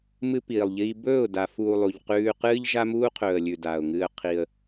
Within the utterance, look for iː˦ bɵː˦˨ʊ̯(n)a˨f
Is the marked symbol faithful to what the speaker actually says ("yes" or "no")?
no